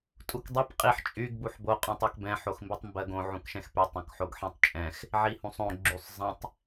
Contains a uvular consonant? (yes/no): yes